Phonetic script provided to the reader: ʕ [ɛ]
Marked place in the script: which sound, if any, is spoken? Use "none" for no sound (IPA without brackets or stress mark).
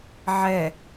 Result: ɛ